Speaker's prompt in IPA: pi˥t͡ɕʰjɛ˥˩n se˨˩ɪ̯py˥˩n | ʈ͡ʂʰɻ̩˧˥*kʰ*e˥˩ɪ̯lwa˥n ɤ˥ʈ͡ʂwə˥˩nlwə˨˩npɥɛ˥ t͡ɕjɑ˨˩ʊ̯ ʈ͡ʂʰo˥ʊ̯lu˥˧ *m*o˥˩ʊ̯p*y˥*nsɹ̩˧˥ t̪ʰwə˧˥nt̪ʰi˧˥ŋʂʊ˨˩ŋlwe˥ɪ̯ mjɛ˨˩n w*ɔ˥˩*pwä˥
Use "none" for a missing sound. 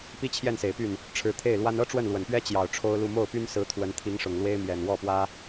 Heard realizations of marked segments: t̪ʰ, m, y˥, ɔ˥˩

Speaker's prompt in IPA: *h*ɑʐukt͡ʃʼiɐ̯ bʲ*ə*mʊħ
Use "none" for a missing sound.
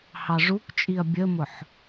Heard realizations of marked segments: h, ə

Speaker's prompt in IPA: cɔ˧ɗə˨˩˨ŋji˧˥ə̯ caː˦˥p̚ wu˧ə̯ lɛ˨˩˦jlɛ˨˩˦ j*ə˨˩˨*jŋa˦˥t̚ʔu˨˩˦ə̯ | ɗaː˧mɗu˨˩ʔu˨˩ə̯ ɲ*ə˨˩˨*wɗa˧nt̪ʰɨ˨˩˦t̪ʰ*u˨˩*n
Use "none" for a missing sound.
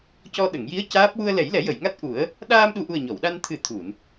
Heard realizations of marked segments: ə˨˩˨, ɔ˨˩˨, u˨˩˨

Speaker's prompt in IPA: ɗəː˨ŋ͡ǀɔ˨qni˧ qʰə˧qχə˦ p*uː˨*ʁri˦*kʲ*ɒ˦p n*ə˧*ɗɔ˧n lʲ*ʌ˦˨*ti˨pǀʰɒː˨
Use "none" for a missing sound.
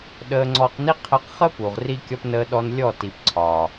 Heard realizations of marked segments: u˨, kʲ, əː˧, ɔ˦˨

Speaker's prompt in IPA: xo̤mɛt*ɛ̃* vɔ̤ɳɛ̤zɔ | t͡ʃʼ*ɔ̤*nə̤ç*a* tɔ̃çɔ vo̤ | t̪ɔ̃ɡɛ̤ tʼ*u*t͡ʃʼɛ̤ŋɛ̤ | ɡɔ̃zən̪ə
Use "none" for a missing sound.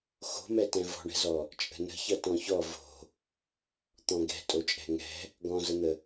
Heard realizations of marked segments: ɛ̃, ə̤, ʌ, o

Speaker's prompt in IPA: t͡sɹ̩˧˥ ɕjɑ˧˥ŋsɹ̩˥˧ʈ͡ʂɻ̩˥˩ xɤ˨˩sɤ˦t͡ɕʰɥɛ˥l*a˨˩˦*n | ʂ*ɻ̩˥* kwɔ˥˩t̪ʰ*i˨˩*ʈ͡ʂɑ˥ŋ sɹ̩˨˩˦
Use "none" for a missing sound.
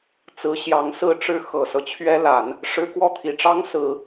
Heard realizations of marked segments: a˨˩˦, ɻ̩˥, i˨˩

